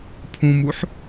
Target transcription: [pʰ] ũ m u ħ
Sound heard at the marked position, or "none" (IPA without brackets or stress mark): pʰ